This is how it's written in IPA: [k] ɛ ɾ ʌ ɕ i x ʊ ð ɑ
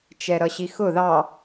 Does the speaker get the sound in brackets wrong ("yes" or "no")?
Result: yes